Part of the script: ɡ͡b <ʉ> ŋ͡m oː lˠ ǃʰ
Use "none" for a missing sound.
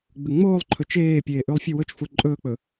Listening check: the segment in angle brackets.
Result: ʉ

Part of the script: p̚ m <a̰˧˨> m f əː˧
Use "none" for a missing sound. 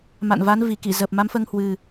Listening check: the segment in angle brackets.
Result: a˨˦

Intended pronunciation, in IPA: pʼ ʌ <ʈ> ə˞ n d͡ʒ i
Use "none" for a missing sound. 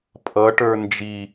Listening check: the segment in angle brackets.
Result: ʈ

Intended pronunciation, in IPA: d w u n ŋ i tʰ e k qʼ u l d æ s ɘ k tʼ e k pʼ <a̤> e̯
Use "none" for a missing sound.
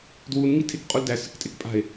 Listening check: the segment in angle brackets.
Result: a̤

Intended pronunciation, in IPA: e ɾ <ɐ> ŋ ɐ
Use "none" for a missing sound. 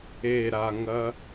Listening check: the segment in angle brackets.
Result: a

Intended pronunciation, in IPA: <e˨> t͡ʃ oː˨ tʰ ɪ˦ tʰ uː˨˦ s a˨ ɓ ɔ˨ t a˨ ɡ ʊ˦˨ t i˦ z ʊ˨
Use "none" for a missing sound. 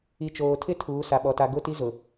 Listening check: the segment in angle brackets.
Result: i˨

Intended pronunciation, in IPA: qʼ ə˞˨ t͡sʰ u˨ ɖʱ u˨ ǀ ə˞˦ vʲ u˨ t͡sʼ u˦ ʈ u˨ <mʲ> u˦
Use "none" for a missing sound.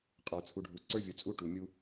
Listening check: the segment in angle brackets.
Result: mʲ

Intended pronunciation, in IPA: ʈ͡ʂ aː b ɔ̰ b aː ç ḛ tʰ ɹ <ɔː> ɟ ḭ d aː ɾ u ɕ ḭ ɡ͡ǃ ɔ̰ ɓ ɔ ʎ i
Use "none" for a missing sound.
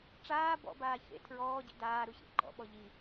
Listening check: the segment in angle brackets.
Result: ɔː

